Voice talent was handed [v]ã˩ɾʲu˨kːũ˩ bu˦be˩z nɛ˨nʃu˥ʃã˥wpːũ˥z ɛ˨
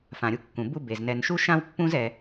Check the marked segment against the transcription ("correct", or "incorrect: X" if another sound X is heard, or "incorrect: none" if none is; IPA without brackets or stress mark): incorrect: f